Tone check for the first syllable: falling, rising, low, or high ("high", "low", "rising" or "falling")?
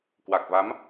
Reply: low